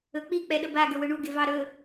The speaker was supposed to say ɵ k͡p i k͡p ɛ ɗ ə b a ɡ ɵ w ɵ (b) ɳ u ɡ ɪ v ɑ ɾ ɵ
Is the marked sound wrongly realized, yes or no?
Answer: yes